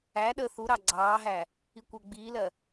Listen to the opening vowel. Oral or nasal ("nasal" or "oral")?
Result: oral